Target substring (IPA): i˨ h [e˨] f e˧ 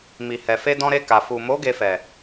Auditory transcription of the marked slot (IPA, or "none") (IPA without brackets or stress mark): ɛ˨